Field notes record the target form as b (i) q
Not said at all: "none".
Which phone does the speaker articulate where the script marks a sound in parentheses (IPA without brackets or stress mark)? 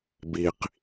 i